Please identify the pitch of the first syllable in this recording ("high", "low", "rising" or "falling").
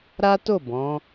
high